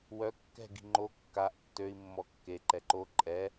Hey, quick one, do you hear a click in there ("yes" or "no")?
yes